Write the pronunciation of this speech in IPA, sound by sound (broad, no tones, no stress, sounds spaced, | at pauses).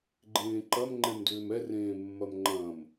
ɡ͡ǃ ẽː ǃ ɐ m ŋ͡ǃ ɛ̃ m d ʏː m ɛ r ẽː mː ɐ m ŋ͡ǃ ɐ̃ m